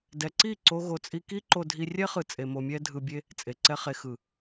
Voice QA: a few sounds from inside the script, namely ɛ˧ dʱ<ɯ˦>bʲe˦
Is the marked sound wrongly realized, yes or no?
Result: yes